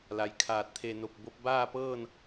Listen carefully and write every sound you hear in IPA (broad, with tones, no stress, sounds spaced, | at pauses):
l a˩ j kʰ aː˧˩ t̚ t̪ʰ e˧˩ n o˧˩ p̚ b o˧˥ p̚ b aː˥˨ p ɤː˥˨ n